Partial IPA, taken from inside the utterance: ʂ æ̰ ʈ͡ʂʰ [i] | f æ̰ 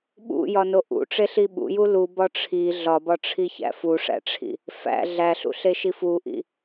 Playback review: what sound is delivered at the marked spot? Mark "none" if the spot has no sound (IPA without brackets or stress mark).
ḭ